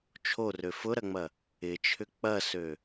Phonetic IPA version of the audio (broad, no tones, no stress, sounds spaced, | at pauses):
t͡ʃʰ o r ø f ʊ ɾ ɐ ŋ͡m ɐ | ɪ t͡ʃʰ ʏ k͡p ɐ s ø